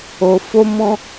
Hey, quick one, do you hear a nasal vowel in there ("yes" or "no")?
yes